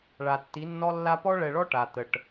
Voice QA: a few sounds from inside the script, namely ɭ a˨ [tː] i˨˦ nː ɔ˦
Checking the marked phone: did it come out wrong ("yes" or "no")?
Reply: no